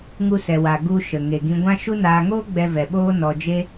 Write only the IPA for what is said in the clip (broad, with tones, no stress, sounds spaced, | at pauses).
ŋ u˧ s ɛ˨ w a˨ ɡ u˧ ʃ ə˨ ŋ e˨ ɡ ĩ˧ ɡʷ ã˦ ʃ u˦ n aː˧ ŋ oː˦ ɡ͡b ɛ˧ v ɛ˧ ɓ oː˦ n ɔ˧ d͡ʒ e˦